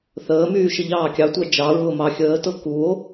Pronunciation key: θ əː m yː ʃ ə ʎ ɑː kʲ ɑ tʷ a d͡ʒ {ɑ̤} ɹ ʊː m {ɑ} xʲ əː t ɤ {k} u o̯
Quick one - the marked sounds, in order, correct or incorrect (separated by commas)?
incorrect, correct, correct